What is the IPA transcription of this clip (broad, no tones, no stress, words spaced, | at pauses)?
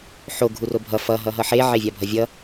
ħo ɡʱurobʱʌ fʌ ɦʌɦʌħe ʕevʲabʱʌvʲʌ